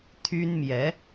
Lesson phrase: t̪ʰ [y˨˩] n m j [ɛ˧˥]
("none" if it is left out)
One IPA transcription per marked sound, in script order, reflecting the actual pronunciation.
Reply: y˥, ɛ˧˥

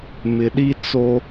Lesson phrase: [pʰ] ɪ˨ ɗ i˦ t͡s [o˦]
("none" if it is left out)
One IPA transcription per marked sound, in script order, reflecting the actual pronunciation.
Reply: m, o˦

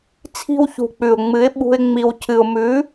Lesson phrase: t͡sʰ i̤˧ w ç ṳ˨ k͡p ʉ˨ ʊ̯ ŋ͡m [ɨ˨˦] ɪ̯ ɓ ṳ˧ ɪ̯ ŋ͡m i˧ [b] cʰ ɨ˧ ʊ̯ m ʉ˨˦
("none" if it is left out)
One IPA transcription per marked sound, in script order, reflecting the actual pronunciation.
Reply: ɨ˨˦, w

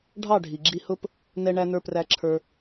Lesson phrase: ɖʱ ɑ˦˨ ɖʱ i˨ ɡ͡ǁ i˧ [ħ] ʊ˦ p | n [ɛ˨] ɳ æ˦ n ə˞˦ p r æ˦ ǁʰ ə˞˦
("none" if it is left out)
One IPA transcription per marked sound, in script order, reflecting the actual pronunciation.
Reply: h, ɛ˦

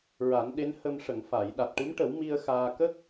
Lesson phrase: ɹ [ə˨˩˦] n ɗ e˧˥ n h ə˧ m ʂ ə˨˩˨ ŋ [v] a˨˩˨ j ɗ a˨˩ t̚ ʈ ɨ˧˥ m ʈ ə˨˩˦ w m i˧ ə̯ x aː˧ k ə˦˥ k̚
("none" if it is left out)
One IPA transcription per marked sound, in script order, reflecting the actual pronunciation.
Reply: a˨˩˦, f

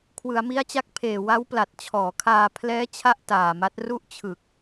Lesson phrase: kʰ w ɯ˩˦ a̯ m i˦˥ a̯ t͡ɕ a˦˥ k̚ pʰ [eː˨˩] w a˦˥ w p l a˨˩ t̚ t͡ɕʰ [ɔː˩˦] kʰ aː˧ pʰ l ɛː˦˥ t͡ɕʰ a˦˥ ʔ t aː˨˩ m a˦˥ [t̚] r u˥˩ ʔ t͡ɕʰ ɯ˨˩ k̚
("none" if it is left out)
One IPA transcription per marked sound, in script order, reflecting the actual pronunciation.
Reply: eː˨˩, ɔː˩˦, t̚

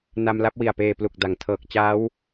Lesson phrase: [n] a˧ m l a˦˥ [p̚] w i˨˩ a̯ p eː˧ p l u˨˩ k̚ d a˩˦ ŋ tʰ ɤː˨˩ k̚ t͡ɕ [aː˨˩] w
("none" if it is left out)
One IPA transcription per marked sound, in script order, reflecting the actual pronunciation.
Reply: n, p̚, aː˦˥

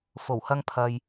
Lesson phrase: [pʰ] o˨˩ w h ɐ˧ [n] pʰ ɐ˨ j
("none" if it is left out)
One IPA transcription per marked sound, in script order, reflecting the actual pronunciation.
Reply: f, ŋ

